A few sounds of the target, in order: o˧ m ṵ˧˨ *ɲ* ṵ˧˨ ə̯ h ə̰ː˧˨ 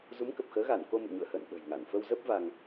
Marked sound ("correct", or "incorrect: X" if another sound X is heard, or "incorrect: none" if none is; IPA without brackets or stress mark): correct